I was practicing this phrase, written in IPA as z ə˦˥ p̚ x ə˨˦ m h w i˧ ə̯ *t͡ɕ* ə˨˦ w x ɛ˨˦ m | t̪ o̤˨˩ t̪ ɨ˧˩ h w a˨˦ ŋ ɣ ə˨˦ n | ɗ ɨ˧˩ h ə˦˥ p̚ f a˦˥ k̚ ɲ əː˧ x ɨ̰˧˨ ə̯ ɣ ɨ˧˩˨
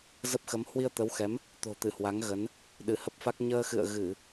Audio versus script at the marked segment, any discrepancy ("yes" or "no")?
yes